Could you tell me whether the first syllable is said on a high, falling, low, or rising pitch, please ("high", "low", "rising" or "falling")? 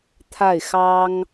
falling